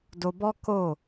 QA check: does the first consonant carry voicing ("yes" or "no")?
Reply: yes